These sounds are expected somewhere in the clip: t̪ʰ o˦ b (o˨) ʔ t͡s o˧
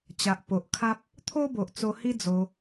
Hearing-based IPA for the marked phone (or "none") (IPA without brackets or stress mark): o˨